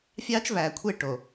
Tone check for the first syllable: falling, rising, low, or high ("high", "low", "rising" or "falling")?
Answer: high